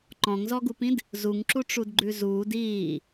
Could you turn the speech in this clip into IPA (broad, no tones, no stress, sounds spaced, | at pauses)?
ǃ ɔ̃ ŋ z ɔ ɡ u p ĩ d | z u ŋ ǁ u ʈ͡ʂ u d ɡ͡ǃ ʉ z uː d iː